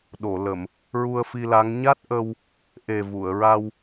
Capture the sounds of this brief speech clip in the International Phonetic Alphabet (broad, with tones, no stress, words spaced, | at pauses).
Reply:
ɗo˨˩˨ lə˨˩˨m | ɹu˧ə̯fi˧la˧˥ŋ ɲa˦˥t̚ʔə˧w | ʔe˨˩vu˨˩˨ə̯ɹa˧w